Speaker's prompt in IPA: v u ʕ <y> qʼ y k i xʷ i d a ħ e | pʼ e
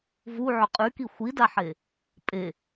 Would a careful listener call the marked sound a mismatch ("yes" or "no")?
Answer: yes